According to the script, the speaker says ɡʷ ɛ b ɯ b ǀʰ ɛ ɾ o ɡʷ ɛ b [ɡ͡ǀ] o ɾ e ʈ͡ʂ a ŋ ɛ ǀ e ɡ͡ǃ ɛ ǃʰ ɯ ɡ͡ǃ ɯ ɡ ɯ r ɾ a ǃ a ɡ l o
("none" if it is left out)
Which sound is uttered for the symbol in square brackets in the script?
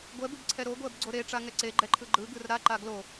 ɡ͡ǀ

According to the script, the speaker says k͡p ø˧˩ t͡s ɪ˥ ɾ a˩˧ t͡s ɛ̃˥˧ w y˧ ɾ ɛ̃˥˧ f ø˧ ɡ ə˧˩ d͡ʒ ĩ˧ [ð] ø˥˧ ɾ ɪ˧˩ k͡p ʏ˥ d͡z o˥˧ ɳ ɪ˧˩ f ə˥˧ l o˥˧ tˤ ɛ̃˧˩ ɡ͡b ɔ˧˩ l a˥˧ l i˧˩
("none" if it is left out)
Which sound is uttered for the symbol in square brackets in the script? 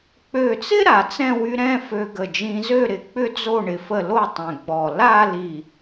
z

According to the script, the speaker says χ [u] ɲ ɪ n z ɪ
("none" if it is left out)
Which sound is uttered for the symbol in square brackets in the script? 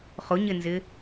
ʊ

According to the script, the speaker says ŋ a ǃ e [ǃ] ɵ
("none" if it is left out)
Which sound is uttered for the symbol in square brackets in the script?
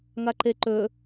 ǃ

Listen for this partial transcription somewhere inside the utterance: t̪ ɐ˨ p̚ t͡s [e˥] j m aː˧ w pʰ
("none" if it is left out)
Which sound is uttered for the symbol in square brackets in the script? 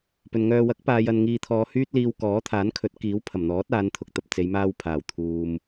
e˨˧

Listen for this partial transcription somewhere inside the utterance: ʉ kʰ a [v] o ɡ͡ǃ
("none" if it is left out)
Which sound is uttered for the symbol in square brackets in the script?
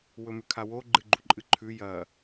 w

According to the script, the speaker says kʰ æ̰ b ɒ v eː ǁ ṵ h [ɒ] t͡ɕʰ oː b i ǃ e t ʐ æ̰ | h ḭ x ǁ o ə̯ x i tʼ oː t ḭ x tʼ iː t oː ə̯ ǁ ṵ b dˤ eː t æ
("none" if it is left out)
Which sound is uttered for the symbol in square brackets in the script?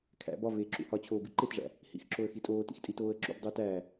ɒ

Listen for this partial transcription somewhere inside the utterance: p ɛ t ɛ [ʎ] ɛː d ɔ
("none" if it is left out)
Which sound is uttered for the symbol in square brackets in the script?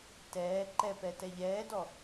ʎ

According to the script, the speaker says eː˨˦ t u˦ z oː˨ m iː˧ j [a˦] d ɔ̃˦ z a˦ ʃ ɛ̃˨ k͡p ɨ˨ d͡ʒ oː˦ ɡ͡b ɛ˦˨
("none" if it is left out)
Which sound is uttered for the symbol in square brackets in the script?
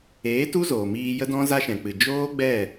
ə˦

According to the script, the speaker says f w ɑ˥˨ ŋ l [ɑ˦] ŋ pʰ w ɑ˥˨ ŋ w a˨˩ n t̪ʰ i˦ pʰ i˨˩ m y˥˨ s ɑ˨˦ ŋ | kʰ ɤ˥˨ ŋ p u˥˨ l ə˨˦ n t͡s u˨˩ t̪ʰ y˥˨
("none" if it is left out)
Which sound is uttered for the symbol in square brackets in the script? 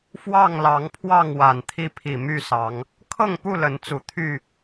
ɑ˨˦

